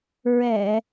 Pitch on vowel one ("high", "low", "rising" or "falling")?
low